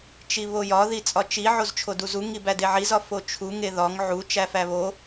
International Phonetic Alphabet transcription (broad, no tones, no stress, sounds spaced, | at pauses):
t͡ʃ i β o j ɒ ð i t͡sʼ ɒ t͡ʃ i ʕ o z t͡ʃʰ o d u z u ŋ i b æ d e ʕ i z ɒ f o t͡ʃʰ u ŋ e ð ɒ ŋ ʕ u t͡ʃ æ f æ β o